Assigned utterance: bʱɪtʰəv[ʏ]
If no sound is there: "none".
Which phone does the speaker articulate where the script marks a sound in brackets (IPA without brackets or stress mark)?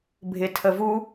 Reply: u